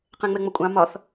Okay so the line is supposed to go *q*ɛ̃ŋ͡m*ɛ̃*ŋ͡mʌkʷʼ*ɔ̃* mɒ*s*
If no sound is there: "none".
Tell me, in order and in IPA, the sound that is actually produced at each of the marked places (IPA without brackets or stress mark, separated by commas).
q, ɛ, ɑ̃, θ